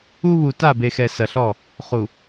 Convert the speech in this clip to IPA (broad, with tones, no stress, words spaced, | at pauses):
u˦βu˨ ta˦˨be˨xɛ˨ sɐ˨ɬɔ˦˨ | χu˨